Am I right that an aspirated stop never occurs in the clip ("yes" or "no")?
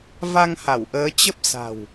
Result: yes